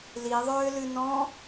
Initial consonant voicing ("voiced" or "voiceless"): voiced